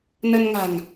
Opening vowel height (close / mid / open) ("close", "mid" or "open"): mid